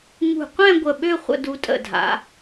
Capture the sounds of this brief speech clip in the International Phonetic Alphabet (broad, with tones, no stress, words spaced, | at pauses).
ŋṳ˧˩qʷɛ̃˥˧ ɡʷə˧˩ɓø˥˧ χʷə̰˧du˧tʼə̰˧˩dʱa̰˩˧